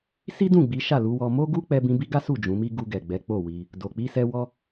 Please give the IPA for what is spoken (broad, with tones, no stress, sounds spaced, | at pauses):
s i˦ d ũ˦˨ ɡ͡b i˨˦ ʃ a˦˨ l u˨˦ w ɔ˧ m o˦ ɡ u˦ k͡p ɛ˧ b ĩ˧ b i˦ ɡ a˦ s u˦˨ d͡ʒ ũ˨˦ m i˦ ɡ u˧ ɡ ɛ˨ ɡ͡b ɛ˨˦ k͡p o˦˨ w i˧ | d o˨ k͡p i˧ s ɛ˧ w ɔ˦